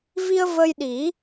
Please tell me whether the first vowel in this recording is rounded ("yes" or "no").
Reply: no